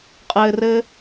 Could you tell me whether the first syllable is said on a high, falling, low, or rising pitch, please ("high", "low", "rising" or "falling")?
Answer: low